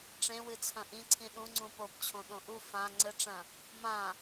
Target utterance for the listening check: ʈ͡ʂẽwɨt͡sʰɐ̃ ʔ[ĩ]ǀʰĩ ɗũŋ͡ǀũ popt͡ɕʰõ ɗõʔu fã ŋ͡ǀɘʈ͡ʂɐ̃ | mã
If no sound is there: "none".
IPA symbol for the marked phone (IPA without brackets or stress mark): ĩ